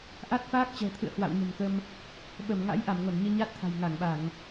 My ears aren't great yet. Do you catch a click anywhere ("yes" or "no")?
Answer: no